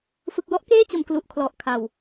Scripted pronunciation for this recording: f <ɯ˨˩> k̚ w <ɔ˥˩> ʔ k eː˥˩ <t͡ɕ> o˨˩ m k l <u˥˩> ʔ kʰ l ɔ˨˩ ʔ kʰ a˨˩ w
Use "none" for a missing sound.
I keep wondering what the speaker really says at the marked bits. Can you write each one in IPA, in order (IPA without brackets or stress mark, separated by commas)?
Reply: ɯ˨˩, ɔ˦˥, t͡ɕ, u˨˩